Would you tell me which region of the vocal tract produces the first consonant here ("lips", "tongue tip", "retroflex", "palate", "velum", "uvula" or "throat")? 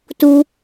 tongue tip